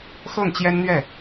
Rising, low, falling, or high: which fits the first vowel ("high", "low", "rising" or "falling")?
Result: falling